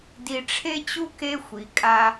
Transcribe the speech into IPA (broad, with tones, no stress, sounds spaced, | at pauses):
d i˧ ʈ͡ʂʰ e˥ t͡ɕ u˥ k e˥ xʷ i˩˧ kʼ a˧